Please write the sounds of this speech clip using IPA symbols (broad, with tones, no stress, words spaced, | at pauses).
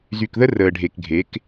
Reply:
zy˨kðə˦ rəː˨ɖʱe˨kɡʱe˨˦k